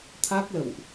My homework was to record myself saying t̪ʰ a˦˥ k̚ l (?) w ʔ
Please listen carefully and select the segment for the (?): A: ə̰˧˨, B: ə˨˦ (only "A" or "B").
A